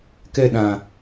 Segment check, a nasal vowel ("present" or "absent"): present